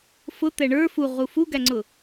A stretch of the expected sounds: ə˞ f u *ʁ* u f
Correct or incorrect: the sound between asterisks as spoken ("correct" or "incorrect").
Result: correct